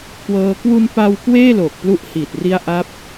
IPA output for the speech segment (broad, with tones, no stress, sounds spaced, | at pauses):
k w ɤː˧ k w u˧ n p a˧ w k w eː˥˩ l o˨˩ k̚ p l u˦˥ ʔ h i˨˩ t̚ r i˦˥ a̯ ʔ a˦˥ p̚